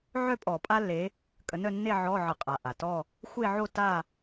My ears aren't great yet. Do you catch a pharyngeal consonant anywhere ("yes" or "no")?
yes